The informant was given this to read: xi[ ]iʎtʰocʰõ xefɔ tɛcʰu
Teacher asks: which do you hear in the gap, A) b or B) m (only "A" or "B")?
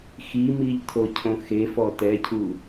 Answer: B